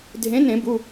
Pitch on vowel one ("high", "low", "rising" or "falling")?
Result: rising